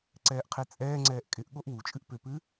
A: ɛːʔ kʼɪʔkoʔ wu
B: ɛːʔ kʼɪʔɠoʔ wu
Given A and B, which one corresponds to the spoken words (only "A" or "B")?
B